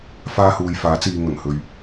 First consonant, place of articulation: labial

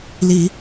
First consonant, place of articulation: alveolar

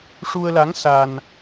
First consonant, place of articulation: retroflex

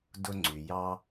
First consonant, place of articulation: alveolar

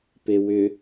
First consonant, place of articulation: labial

